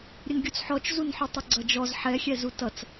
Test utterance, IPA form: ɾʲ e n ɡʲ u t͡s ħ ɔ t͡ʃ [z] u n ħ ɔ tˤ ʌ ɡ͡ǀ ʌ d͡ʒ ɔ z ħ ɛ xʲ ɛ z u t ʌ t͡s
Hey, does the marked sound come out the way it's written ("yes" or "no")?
yes